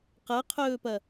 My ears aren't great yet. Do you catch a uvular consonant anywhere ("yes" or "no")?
yes